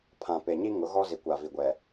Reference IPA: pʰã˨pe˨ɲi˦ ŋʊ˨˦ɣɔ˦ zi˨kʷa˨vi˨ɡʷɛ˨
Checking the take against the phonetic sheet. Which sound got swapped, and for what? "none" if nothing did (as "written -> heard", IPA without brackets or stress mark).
none